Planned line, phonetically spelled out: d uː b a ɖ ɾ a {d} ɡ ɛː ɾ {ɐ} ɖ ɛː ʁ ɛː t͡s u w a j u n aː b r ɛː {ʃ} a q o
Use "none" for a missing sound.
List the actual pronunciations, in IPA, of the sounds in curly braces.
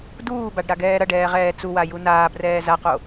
none, ɐ, z

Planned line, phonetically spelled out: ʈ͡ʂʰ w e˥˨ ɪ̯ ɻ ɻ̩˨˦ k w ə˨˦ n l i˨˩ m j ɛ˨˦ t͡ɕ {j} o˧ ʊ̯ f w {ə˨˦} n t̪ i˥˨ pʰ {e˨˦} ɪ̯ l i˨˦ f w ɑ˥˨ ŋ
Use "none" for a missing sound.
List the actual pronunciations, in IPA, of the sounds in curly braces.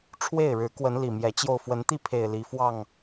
j, ə˨˦, e˨˩

